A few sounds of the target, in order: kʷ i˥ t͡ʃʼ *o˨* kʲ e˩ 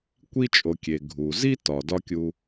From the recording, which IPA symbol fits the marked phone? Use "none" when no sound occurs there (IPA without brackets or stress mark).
o˨